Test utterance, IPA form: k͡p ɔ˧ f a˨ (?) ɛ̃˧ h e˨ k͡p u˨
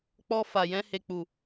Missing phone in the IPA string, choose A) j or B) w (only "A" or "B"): A